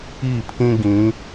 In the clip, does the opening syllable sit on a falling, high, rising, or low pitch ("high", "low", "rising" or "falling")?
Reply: falling